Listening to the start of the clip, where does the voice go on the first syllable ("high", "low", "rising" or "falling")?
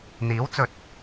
rising